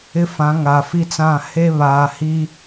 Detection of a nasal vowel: present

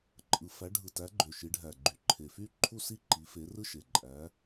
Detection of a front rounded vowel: present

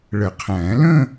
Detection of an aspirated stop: present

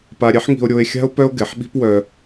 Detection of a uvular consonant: absent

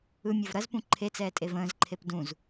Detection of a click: present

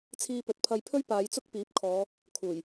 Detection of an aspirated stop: present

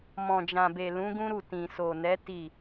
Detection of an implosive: absent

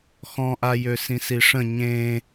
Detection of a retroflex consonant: present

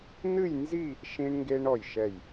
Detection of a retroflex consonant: present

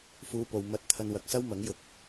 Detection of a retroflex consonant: absent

